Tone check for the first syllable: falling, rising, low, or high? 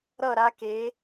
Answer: falling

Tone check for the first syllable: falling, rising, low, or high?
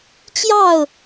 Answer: falling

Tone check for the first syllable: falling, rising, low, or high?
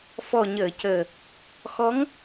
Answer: low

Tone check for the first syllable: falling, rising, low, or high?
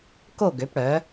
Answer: falling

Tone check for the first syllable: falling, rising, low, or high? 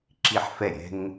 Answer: falling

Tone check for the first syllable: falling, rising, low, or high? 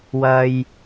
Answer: low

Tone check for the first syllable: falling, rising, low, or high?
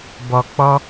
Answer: low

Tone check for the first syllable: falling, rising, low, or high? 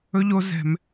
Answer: high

